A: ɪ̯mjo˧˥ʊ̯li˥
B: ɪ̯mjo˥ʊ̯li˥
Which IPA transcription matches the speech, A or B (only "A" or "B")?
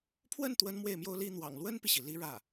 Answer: B